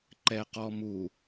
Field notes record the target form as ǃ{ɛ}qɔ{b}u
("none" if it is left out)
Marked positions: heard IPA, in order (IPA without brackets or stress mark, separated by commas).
ɛ, m